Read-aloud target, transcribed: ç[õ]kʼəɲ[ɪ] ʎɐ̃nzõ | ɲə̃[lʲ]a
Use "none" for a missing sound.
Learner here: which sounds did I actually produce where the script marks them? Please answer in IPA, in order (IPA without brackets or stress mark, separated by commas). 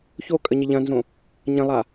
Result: o, ɪ, lˠ